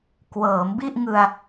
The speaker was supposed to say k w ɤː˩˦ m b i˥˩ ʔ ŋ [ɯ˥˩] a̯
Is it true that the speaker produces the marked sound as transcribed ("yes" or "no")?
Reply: no